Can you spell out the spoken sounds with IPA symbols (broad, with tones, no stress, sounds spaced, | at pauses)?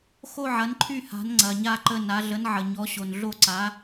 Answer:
x o˥˨ ʕ ɐ˩˥ n ǃʰ y˥˨ h a̤˩˥ n ŋ͡ǀ ɐ˩ ɲ a˥˨ ǃ ə˥˨ n a˩˥ ɮ ə˩˥ n ʕ ə˩ ɲ ɔ˩˥ ɕ o˩ n ɮ o˥˨ ǀ a˩˥